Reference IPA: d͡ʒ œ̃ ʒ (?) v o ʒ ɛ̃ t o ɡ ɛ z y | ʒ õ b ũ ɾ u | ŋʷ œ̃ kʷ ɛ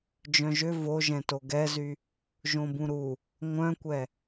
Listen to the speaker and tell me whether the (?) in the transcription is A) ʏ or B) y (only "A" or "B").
A